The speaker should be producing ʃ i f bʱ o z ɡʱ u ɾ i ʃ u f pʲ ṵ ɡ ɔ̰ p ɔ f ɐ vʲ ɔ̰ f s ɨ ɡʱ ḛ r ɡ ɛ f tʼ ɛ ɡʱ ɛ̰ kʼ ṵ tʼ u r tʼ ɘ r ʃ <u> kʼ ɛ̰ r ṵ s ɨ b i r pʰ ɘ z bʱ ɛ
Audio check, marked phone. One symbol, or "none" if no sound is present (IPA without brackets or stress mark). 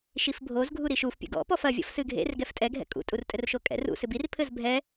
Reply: o